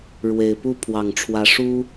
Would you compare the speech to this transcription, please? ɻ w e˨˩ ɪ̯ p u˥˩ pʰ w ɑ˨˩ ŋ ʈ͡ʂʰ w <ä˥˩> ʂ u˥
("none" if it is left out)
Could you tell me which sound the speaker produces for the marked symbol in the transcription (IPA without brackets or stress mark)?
ä˧˥